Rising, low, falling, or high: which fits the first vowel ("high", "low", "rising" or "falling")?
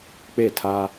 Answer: falling